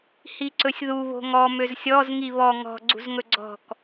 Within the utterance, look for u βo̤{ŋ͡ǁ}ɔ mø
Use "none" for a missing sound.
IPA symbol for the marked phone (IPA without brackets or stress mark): ŋ